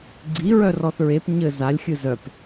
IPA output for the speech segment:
ɡ͡ǀ i ɹ œ r ɔ θ ɹ e p ɲ ɘ z a lʲ xʲ ɨ z œ p

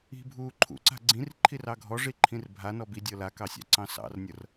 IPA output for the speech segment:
i̤ bʱ uː ǃʰ ṵ ǀ a̤ ɡ͡ǀ ĩ r ǃʰ i r ɑ ɡʱ ɔ ʐ i ǃʰ ĩ r bʱ a n ɔ b i dʲ ɤ l a k ɑ sʲ ɑ̰ ǀ ɑ̃ s ɑ̰ r nʲ ɤ r

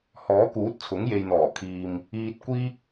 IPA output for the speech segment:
h ɔː˨˥ k uː˨˥ t̚ t͡sʰ ʊ˨˥ ŋ j e˨ j n̪ ɔː˨˩ kʰ iː˨ m | iː˧ t̚ kʷ iː˥ k̚

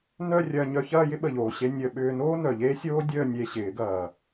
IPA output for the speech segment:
n œ˥˧ rʲ ɐː˧ ɲ œ˧ ç ɐː˥˧ j ɪ˥ ɓ ə˨˩ ʎ oː˨˩ ɕ e˧ nʲ əː˧ ɓ ʏː˧ n oː˥ n œ˨˩ ʎ eː˥ sʲ oː˥ dʲ əː˥˧ nʲ e˧ ɕ ɪː˨˩˦ ɡ ɐː˨˩

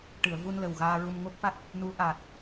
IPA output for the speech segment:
ʈ ɨ˨˩˨ ə̯ v u˧ n l ə˨˩ w ɣ aː˧ ɹ u˧ m ŋ o˦˥ k̚ f a˦˥ t̚ | n u˧˥ ʔ aː˨˩ t̚

